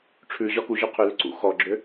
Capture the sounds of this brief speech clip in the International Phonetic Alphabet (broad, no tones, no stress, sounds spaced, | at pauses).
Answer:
ʈ͡ʂʰ ʉ ʑ ɒ k u ʑ ʉ qʰ ʉ l ʏ ǀ ṵ x ɔ ɡ͡ǁ ʏ